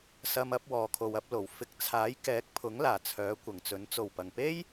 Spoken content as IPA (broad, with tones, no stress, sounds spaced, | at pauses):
s ɐ˧ m ɐ˨˥ p̚ w ɔː˧ kʰ o˧ w ɐ˥ p̚ l o˨˩ w f ɪ˨˥ k̚ t͡sʰ aː˨˥ j k ɛː˨˥ k̚ pʰ ʊ˨˥ ŋ l aː˨˩ t͡sʰ œː˨˥ kʷ ɐ˨˩ ŋ t͡s ɵ˨˥ n t͡s o˨˩ w p ɐ˨˩ ŋ p e˥ j